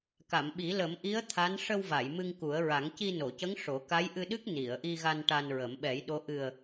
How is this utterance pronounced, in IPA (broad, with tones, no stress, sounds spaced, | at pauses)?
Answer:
k a˨˩˨ m ɓ i˨˩˦ l ə˨˩˦ m ʔ i˧˥ ə̯ t̪ʰ a˧˥ n ʂ ə˧ w v a˨˩˨ j m ɨ˧ ŋ k u˨˩˦ ə̯ ɹ a˨˩˦ ŋ c i˧ n o˨˩˨ c ə˧˥ ŋ ʂ o˨˩˦ k a˧˥ j ʔ ɨ˧ ɗ ɨ˦˥ k̚ n i˨˩˨ ə̯ ʔ i˧ ɣ a˧ n ʈ a˧ n ɹ ə˨˩˦ m ɓ ɛ˨˩˦ j ɗ o˧˥ ʔ ɨ˨˩ ə̯